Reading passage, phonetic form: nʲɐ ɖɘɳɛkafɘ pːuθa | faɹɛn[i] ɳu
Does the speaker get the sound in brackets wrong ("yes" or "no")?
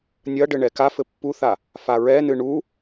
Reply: yes